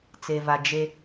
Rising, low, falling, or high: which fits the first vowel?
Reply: low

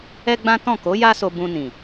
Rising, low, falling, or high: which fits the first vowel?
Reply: high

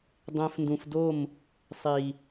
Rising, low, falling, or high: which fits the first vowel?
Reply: low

